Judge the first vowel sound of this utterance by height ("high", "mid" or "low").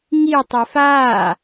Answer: high